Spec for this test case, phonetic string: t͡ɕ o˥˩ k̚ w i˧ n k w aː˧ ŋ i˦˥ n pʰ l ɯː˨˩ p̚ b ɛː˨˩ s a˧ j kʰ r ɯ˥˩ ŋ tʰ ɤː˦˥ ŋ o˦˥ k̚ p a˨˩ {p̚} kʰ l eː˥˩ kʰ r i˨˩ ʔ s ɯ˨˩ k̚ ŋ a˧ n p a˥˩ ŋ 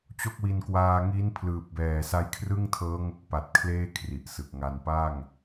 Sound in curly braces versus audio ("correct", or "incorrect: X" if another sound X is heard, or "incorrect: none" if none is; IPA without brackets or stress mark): incorrect: t̚